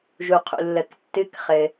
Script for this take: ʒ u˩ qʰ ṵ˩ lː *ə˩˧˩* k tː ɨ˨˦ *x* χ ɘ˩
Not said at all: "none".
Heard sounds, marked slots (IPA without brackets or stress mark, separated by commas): ə˩, k